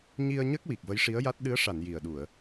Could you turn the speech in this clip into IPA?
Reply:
ɲ i˧ ə̯ ɲ ə˦˥ k̚ w i˨˩ k̚ v ə˧˥ j ʂ i˧˥ ə̯ j a˦˥ t̚ ɗ ɨ˧˥ ə̯ ʂ a˨˩˨ n j i˨˩ ə̯ ɗ u˨˩˨ ə̯

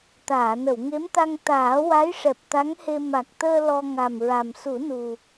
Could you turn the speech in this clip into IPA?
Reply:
t̪ aː˨˩˨ n ə˨˩˨ w ŋ e˧˥ m t̪ a˧ ŋ t̪ aː˨˩˦ w a˧˥ j ʂ ɛ˨˩ p̚ t̪ a˧˥ ŋ h e˧ m a˨˩ k̚ t̪ əː˧ l ɔ˧ ŋ a˨˩ m ɹ a˨˩ m s u˨˩˦ n u˨˩

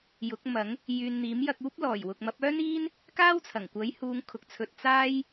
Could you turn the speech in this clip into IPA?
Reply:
j ʊ˨˥ k̚ m ɐ˨˥ ŋ | j yː˨ n n̪ iː˨˥ m j ɐ˧ k̚ uː˥ p̚ l ɔː˨˩ j w ʊ˨ k̚ m ɐ˨˥ p̚ œː˥ n iː˥ n | k aː˥ w t͡sʰ ɐ˨˩ ŋ kʷ ɐ˨˥ j h uː˨˧ ŋ kʰ ʊ˨˥ k̚ t͡sʰ ɵ˧ t̚ t͡s aː˥ j

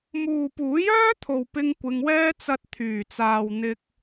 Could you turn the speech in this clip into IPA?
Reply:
m uː˨ p uː˨˥ j œː˥ t̪ʰ o˨ w p ɪ˧ ŋ kʷ ɪ˧ ŋ w ɛː˥ t͡s ɐ˧ t̚ t̪ʰ yː˨˩ t͡s aː˨ w n̪ ɪ˧ k̚

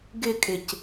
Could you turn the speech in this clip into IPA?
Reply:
ɡ ɪ kʼ ɪ c

